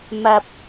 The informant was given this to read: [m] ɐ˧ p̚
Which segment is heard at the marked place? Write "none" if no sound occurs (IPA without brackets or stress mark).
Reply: m